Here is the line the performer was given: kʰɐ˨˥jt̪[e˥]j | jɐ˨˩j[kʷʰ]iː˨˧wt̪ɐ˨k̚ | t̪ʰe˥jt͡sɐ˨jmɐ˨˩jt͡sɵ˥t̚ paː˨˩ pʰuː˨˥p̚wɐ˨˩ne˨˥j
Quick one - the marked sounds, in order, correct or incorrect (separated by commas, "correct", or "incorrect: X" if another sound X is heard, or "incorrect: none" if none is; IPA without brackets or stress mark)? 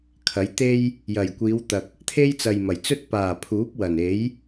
correct, incorrect: kʷ